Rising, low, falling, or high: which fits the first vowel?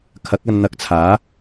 rising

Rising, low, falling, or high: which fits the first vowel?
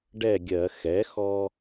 falling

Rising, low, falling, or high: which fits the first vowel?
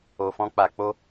low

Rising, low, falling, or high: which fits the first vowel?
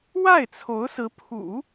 falling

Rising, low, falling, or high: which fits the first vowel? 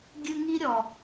high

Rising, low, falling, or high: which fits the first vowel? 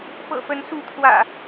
low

